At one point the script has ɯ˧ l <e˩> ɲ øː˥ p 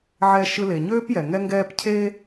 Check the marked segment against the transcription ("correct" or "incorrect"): correct